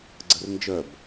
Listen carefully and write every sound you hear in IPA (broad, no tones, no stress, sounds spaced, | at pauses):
ɡ͡ǀ ə r n d͡ʒ œ b